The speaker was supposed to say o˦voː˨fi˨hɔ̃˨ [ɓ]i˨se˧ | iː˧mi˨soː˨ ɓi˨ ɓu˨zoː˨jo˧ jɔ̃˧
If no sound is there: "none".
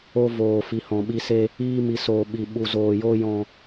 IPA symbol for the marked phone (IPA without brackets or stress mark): ɓ